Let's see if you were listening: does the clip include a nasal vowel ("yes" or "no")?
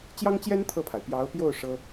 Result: no